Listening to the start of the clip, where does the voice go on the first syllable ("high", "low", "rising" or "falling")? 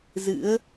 rising